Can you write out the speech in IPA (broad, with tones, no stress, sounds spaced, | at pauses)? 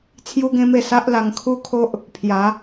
t͡sʰ j u˦ ɡ ẽ˦ m e˥˧ s a˦ ʔ l a˧ ŋ kʰ u˦ kʰ o˦ ʔ | pʰ j a˨˦